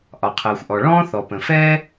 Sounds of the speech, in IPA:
ʔ ɒ˩ qʰ ɜː˩ xʷ ʔ ɔ˩ ɭ ɔ̃ː˥ θ ɔ˩ p ə̃˩ f ɛː˥

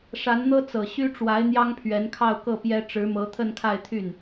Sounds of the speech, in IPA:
ʂ a˧˥ n n̪ ɤ˥ t͡s ɤ˨˩ ɕ y˥ ʈ͡ʂ w a˧˥ ɪ̯ n̪ j ɑ˥ ŋ pʰ ɥ ɛ˧˥ n kʰ ɑ˥˧ ʊ̯ k ɤ˥˩ p j ɛ˥ ʈ͡ʂ ɻ̩˧˥ m ɤ˧˥ t̪ʰ ə˥˧ n kʰ a˥˧ ɪ̯ t̪ʰ y˥˩ n

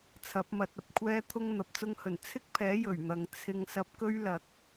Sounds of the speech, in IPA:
t͡sʰ ɐ˨˥ p̚ m ɐ˨˥ t̚ ɐ˧ p̚ kʷʰ ɛː˥ t̪ʰ ʊ˥ ŋ n̪ ɐ˨ p̚ t͡s ʊ˥ ŋ h ɵ˨˩ n t͡sʰ ɪ˥ k̚ pʰ ɛː˨˥ j ɵ˨˩ ɥ n̪ ɐ˨ ŋ t͡sʰ ɪ˧ ŋ s ɐ˧ p̚ k ɵ˥ ɥ l ɐ˨ k̚

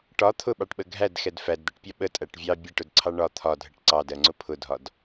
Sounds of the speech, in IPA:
ʈ ɒ t̪ʰ ʊ ɓ ɑ ʈ ɓ ə ɡʱ æ d x ɛ d f æ d d̪ ɛ ʈ pʲ ɒ ɓ ə tʼ æ ʈ vʲ ɑ bʲ æ ʈ ʊ d ǀʰ ɑ ɳ ɒ t̪ʰ ɒ dʱ ə ʈ ǀ ɑ d ɜ ŋ͡ǀ ʊ pʰ ʊ dʱ ɒ d

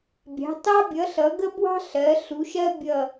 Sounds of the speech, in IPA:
bʲ ɑ̤˨˥ t ɑ˥ bʲ ʌ˨˥ ɬ ʌ˨˥ ɡ ə˥ b w ɑ̤˥ ɬ ɜ˨˥ ɬ u˨˥ ʃ ɜ˥ bʲ ʌ˦˨

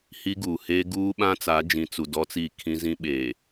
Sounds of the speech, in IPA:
h i˦ ɡ uː˨ h eː˦ ɡ uː˦ ɓ ã˦ t͡s a˨˦ d͡ʒ ĩ˨ t͡s u˨ d ɔ˦ t͡s iː˦˨ kʰ ĩ˦ z ĩ˦ ɓ eː˨

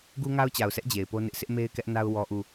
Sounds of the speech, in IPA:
ɡ u˦ ŋ a˦ ʊ̯ t͡ɕ a˨ ʊ̯ s ɛ˦ ʔ d͡ʑ e˨ ɪ̯ p o˦ n ɪ˦ ʔ sʰ ɪ˦ ʔ m e˦ ɪ̯ k ɛ˦ ʔ n a˦ ʊ̯ w ɔ˦ ʔ u˦˨

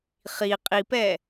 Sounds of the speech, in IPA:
χ i qʼ i p ɛ

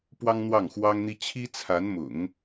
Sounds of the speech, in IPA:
p w ɑ˥ ŋ n̪ w ɑ˥˩ ŋ x w ɑ˥ ŋ n̪ i˥ t͡ɕʰ i˥ t͡sʰ a˧˥ n m ʊ̰˨˩˦ ŋ

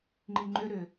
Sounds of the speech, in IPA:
ŋ͡ǃ i ŋ͡ǃ ʏ ɾ ʏ

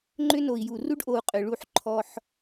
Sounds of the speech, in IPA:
ŋ͡ǃ ʏ˦ n o˨ i̯ j u˨ r u˦ ɖ ʔ o˨ u̯ qʼ ʏ˨ ɭ u˦˨ ħ ǃʰ ɔ˦ ħ

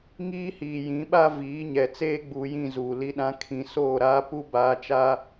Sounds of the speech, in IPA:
ŋ iː˦ h iː˨ j ĩ˨˦ ɓ a˦ v iː˨˦ ɲ ɛ˨ t͡s eː˦ ɡ͡b uː˨ j ĩ˦˨ z uː˨ l i˦ ɗ ã˦ kʰ ĩ˨ s oː˦˨ ɾ aː˦ p u˦ b aː˨˦ t͡ʃ aː˦

